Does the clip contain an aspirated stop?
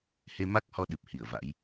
no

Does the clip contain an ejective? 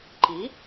no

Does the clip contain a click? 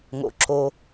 yes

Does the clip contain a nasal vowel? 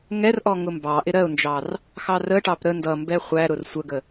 no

